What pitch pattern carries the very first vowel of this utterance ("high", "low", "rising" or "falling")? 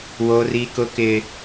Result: high